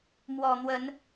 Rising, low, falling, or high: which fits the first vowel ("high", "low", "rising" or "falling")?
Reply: low